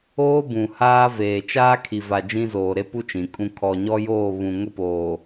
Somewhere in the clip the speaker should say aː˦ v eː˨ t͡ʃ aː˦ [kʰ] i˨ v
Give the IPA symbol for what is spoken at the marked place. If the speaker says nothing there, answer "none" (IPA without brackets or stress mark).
kʰ